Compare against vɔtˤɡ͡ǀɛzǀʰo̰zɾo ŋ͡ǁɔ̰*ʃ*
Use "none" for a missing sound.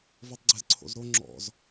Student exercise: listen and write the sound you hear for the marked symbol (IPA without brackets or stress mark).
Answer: z